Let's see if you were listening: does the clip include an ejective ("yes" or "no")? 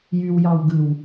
no